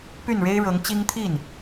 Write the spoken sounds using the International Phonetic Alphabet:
p y˥˩ n ɻ e˥ ɪ̯ ɻ ɤ˧˥ ŋ t͡ɕ i˥ ŋ t̪ʰ i˥˩ n

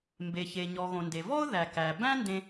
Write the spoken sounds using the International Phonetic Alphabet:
m b e˩ ç e˩ ɲ ɔ˩ ɣ õ˩ n d e˩ v ɔ˥ ʊ̯ ð æ˩ k æ˩ b æ̃˥ n d ẽ˥

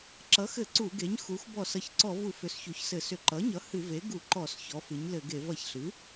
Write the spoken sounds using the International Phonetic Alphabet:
ǁ ʌ˩˥ x ɘ˧˩˧ ǀ u˧˩˧ ɡ e˩˥ ɲ x u˩˥ x b ɔ˧˩˧ s ʌ˩˥ ç ǀ ɔ˧˩˧ v u˧˩˧ f ʏ˩˥ s ç u˩˥ ç s ɘ˧˩˧ s ʏ˧˩˧ ǃ ʌ˩˥ ɲ ʌ˩˥ h ɨ˧˩˧ v e˩˥ ɡ u˧˩˧ ǃ ɔ˧˩˧ s ç ɔ˩˥ f ɨ˩˥ ɲ l ɘ˧˩˧ ɡ e˧˩˧ v ʌ˧˩˧ ç ɬ ɨ˩˥

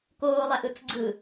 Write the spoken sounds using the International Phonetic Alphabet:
k oː lˠ æ ʔ ɯ t͡s ɡ͡ǀ ɯ

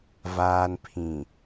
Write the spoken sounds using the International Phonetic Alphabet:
v aː˨ n pʰ ĩ˨

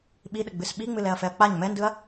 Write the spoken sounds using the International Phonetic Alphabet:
ɓ i ɗ ə ɡ͡b ɨ s ɓ i ŋ͡m ɨ l ɛ ɐ̯ f ɛ ɐ̯ k͡p a ɲ m ɛ n d ɯ ɐ̯

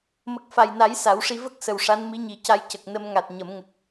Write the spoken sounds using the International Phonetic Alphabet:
m ə˨˩ k̚ f a˨˩ j n a˨˩˦ j s a˨˩˦ w ʂ i˧ v ə˦˥ k̚ s ə˨˩ w ʂ a˧˥ n m i˧˥ ɲ i˨˩˦ c a˧ j c ə˨˩ k̚ n ə˧ m ŋ a˨˩ t̚ ɲ ə˨˩˦ m ŋ ə˨˩ k̚

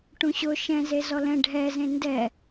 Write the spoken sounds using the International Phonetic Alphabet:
ʈ ũ ɕ ʊ ʃ ɛ̃ z e z ɔ l ɛ̃ ɖʱ ɛ z ẽ n d ɛ

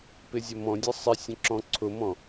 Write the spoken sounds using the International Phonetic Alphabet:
p ɪ zʲ ə m ɔ̃ dʲ ɛ sˤ ɪ sʲ ə̃ ǁ ɔ̃ ǀʰ ʊ m ɔ̃

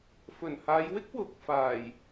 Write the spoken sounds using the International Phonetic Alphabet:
f ɵ˨˩ n h aː˨˧ j w ɪ˥ k̚ w ʊ˨˥ k̚ f aː˨˩ j

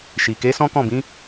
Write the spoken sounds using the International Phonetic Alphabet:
ʃ i˨ k e˨˦ s ɔ̃˦ k ɔ̃˦˨ b ĩ˨˦

